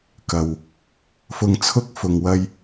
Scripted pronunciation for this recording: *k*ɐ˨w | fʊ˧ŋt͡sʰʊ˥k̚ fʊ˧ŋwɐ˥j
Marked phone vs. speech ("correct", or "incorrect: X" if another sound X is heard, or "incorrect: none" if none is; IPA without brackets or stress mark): correct